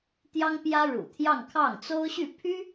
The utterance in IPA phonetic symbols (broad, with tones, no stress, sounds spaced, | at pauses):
t̪ j ɑ˥ ŋ p j ä˥ ɻ ṵ˨˩ t̪ʰ j ɑ˥˧ ŋ kʰ ɑ˥˩ ŋ t͡s o˥ ʊ̯ ɕ y˥˩ pʰ y˥